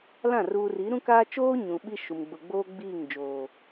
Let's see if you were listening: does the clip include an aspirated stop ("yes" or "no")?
no